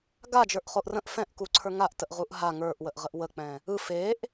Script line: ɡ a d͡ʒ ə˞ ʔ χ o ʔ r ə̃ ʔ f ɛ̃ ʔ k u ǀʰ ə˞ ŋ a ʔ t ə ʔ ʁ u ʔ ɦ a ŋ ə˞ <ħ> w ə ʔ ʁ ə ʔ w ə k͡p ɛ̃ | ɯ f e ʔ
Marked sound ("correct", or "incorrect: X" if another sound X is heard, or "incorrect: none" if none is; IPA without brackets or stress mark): incorrect: ʔ